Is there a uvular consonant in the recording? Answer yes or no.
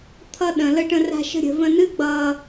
no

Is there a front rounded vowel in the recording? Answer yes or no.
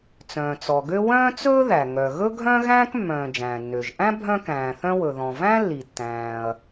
yes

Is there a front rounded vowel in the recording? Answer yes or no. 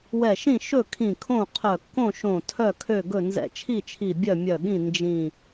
yes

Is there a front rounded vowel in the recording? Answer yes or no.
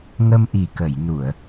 no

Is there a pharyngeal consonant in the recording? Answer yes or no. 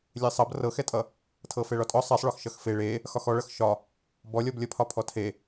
no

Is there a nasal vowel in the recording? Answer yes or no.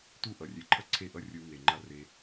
no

